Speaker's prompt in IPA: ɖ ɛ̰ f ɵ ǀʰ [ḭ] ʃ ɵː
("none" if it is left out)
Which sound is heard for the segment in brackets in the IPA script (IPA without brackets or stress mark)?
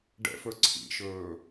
ḭ